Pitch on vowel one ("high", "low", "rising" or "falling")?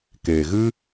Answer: low